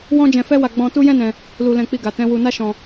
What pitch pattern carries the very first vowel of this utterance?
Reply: high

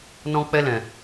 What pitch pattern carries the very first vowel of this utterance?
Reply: high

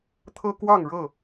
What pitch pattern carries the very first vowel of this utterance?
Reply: high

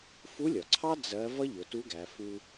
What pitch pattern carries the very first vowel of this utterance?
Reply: rising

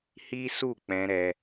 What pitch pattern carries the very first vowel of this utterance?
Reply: high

